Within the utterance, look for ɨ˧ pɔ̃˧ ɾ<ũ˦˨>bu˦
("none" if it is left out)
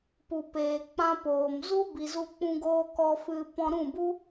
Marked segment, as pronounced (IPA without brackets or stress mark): ũ˦˨